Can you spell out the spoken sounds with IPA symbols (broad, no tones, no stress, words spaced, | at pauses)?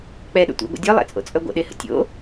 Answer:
k͡pɛɗə̰ tʷḭɡʷə̰ dʲœlˠɛ̰t͡sʼo̰t͡sʼœ ɡʷə̰ɗehə̰ tʲo̰